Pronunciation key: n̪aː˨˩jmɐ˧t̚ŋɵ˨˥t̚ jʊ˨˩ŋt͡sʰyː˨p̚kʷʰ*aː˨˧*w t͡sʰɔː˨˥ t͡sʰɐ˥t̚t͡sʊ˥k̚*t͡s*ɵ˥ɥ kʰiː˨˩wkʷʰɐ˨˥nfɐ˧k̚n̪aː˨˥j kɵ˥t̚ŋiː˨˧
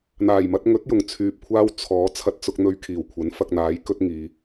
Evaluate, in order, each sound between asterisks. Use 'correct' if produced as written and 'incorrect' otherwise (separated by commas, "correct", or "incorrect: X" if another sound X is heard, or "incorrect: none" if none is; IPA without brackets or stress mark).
incorrect: aː˥, incorrect: n̪